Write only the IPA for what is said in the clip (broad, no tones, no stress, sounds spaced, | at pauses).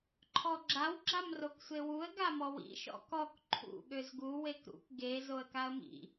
ǃʰ ɔ ɡ͡ǁ a w ɡ͡ǁ a m r o k sʷ e w u ə̯ ɡ a m ɔ w ḭ ʃ ɔ̰ k ɔ k ǃʰ ṵ ɠ ø z ɡ u w e k ɾ ṵ k ɡ e z o ə̯ k a ə̯ m ḭ